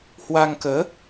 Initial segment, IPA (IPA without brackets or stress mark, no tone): h